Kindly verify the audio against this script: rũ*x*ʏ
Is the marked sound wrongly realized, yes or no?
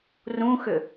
no